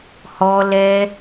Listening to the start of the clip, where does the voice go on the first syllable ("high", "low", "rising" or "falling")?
high